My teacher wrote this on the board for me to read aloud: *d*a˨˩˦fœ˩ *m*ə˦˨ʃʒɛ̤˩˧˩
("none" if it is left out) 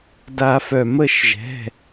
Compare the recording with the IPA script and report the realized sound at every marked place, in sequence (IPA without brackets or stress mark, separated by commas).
d, m